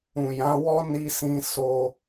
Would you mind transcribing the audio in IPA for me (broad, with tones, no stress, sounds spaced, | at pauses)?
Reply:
ũ˨ j ã˨˦ w ɔ˦ n i˦ s ĩ˦ s o˦